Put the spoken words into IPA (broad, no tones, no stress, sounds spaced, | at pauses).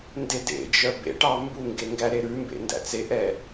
n d e d ḛ d͡ʒ œ b ḛ ʈ ɑ m b u ŋ ɡ e ŋ ɡ æ ɾ e ɾ ʉ m b ḛ n d æ̰ t͡s e ʔ ɛ